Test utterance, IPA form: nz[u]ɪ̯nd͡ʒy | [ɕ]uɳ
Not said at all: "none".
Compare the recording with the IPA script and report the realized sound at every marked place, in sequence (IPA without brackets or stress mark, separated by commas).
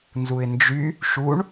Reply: u, ʃ